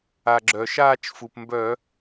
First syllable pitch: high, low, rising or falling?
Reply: low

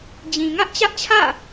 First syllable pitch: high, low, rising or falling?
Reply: low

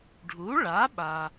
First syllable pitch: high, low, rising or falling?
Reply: rising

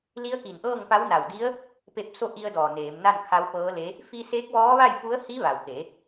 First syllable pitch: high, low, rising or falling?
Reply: rising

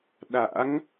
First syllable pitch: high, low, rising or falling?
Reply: rising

